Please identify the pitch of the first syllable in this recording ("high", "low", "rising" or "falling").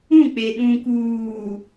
falling